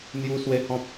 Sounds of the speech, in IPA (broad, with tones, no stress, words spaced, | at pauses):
n̪ju˦swe˦hɔ̃˦p̚